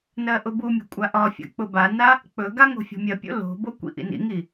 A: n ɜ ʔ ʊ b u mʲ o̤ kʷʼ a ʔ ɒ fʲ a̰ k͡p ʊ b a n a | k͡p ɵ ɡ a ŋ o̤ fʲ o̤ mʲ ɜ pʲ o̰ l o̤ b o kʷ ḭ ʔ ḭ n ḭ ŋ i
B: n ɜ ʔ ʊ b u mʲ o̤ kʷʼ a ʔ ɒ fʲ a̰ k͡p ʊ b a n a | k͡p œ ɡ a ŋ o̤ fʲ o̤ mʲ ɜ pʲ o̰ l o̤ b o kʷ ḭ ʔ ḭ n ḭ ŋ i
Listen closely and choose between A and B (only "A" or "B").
A